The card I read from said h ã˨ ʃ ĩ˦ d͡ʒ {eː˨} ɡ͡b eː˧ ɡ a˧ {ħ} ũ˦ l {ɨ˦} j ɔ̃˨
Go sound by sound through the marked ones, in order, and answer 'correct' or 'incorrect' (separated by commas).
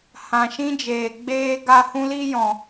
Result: correct, incorrect, incorrect